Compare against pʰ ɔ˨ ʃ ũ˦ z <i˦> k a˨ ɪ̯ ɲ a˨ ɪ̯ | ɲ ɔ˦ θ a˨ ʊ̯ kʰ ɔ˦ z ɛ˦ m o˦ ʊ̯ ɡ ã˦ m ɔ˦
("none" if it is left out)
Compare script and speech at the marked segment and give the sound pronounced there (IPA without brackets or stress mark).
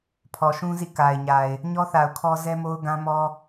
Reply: ḭ˦˨